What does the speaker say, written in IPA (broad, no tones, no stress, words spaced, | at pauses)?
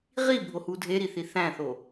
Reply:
ʁibʱohu dʱeɾiθi θæ̃θo